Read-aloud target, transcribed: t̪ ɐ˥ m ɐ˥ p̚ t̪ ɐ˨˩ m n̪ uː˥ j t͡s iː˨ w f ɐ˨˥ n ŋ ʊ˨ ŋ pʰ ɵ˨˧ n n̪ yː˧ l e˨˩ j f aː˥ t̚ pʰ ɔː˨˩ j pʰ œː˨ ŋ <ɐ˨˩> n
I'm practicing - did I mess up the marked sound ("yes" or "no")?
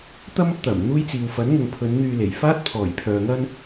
yes